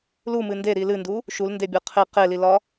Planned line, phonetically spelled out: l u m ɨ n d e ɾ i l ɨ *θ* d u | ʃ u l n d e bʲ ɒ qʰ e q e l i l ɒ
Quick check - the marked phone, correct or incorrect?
incorrect